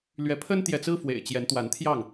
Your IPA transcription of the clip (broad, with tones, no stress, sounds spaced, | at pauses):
l ɥ ɛ˨˦ pʰ ə˦ n t̪ j ɛ˨ t͡s ɹ̩˦ f w ḛ˨˩ ɪ̯ t͡ɕ j ɛ˨˦ n t̪ w a˨˦ n t̪ʰ j ɑ˥˨ ŋ